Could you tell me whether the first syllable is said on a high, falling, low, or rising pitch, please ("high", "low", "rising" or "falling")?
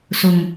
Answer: low